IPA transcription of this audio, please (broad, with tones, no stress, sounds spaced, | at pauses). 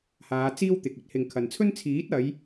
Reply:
h aː˨˧ t͡s iː˥ w t̪ ɪ˨ k̚ ɵ˥ t̚ h ɪ˨ ŋ kʰ ɐ˨ n t͡sʰ ɵ˥ n t͡sʰ iː˨˥ t̚ ɐ˨˧ j